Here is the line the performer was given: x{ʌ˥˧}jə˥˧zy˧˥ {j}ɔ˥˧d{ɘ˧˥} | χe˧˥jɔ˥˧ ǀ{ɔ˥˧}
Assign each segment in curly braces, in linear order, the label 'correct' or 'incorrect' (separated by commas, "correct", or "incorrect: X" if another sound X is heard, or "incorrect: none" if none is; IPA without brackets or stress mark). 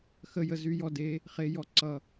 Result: incorrect: ə˥˧, correct, incorrect: e˧˥, incorrect: ʌ˥˧